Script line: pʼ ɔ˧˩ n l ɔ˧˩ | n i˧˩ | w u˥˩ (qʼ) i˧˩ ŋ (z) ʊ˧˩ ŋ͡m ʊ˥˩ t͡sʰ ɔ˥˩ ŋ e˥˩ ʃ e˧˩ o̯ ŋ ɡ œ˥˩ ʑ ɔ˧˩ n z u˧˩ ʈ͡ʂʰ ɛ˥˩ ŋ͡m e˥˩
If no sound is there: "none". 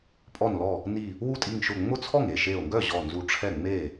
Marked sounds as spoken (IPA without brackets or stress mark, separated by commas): tʼ, ʃ